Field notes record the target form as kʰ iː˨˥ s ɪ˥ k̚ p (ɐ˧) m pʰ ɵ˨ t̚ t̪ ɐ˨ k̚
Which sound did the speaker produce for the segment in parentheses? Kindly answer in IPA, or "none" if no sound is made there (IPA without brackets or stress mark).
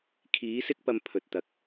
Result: ɐ˧